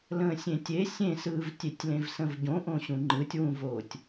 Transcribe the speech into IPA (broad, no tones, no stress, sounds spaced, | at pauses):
l ə̃ː sʲ ẽ tʲ e sʲ ẽ s ɯː v tʲ e tʲ l ẽ v s ə̃ v ɟ õ ʔ õ ɕ ũ ŋ͡ǃ ɯ tʲ w ũ v oː tʲ